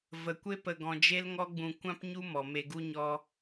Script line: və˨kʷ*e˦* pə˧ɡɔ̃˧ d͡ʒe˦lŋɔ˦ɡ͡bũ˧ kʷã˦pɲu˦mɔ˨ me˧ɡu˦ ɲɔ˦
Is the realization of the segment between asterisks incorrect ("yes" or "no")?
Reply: no